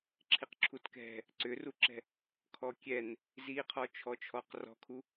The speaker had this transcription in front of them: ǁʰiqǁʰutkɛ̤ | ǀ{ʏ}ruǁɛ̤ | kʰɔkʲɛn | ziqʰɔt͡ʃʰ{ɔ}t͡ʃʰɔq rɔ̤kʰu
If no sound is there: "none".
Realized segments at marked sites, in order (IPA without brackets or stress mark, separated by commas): ʏ, ɔ